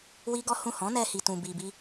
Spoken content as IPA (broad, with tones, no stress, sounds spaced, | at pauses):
w i˦ ɡ ɔ˦ h ũ˦˨ h ɔ̃˨˦ n ɛ˧ h i˨ t ũ˨ b i˨ b i˧